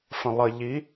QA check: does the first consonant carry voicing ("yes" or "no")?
no